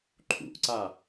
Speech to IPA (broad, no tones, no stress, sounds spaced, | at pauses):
ǃʰ ṵ ʔ ǀ a